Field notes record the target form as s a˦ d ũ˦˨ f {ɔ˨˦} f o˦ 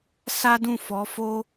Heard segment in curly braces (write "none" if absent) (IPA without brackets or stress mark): ɔ˨˦